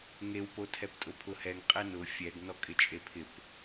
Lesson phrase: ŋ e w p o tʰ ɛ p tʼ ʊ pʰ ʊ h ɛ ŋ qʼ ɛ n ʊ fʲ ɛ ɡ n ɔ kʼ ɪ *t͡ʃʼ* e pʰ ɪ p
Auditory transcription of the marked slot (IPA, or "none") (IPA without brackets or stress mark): t͡ʃʼ